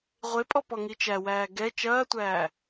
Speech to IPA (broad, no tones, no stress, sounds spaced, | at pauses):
ʁʷ e pʼ ɔ p ɔ ŋ i t͡ʃ æ w æː ɡ ɛ t͡ʃ ɐː tʷ æː